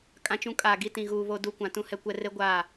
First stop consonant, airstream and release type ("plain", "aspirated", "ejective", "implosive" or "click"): ejective